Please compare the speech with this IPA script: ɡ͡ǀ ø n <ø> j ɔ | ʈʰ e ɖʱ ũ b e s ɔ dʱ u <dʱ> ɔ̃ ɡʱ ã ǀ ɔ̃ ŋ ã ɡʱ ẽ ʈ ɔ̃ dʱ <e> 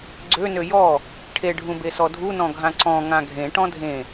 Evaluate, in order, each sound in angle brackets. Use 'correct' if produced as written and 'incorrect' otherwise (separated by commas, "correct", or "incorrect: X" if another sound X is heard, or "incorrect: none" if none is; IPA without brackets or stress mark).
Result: correct, incorrect: n, incorrect: ẽ